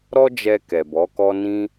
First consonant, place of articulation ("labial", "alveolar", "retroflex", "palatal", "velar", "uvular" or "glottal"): alveolar